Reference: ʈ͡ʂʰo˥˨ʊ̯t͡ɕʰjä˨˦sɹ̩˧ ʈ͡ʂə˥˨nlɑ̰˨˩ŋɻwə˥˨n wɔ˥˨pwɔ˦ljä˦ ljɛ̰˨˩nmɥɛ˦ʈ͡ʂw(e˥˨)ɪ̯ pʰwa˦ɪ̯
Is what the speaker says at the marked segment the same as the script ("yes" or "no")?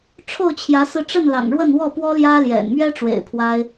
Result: no